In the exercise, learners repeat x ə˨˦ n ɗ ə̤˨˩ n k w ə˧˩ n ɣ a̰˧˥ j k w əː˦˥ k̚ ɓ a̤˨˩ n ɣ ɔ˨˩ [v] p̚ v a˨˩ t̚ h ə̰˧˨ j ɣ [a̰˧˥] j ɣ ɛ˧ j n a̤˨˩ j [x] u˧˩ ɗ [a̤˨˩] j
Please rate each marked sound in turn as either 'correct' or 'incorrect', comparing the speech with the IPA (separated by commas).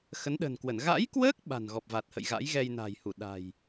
incorrect, correct, incorrect, correct